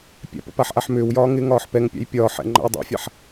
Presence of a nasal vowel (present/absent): absent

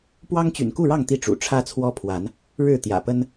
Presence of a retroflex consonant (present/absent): present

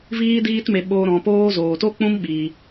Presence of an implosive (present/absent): present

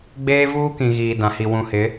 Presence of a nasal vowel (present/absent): present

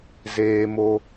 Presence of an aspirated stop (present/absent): absent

